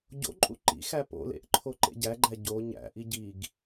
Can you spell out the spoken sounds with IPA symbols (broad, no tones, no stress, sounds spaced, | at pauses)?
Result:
ɟ o̰ ǃʼ ṵ ǃ ḭ x æ p o̰ l ḛ ʔ ǃʰ o ǃ ḛ ɟ æ ɡ͡ǃ æ ɟ o ɲ æ̰ ʔ i ɟ i ɡ